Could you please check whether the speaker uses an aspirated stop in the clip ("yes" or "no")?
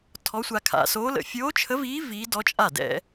yes